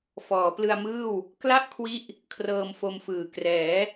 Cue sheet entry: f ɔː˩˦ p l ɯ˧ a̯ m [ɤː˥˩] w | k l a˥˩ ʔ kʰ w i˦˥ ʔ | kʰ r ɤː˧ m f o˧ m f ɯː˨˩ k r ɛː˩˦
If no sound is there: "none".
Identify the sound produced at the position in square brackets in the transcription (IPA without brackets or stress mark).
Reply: ɯː˥˩